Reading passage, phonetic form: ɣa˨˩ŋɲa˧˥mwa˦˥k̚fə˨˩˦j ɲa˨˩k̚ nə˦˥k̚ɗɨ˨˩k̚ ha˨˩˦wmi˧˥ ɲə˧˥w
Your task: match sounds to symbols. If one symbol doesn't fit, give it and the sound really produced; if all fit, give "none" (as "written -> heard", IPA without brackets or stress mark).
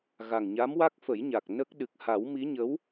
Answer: none